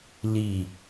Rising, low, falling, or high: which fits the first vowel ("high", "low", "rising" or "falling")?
low